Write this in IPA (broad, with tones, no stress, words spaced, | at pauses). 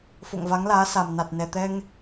fo̰˧˨ŋva˨˦ŋlaː˨˦sa˨˩m na˨˩t̚nɛ˨˩t̪ɛ˧ŋ